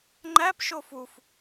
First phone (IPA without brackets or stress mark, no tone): ŋ͡ǃ